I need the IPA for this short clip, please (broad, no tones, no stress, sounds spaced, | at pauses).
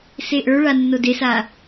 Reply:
s e ʔ ə˞ ɭ a nː o d e s a